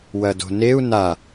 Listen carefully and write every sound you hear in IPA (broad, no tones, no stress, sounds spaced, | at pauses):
w ɐ d o̤ n e u̯ n a